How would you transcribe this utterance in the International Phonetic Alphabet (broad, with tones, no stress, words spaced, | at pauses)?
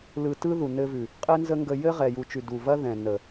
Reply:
lɯ˧ tɯ˦ðu˨nɘ˧vʉ˨ | qʼɘ˦nzə˦ŋɡə˧ jɘ˦ ʁɛ˨ju˨t͡ʃʉ˨ du˨ vɐ˦ðɛ̃˨ nə˨